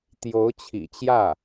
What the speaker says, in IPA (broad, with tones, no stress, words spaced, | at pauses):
t̪jo˧˥ʊ̯t͡ɕʰḭ˨˩t͡ɕjä˥˩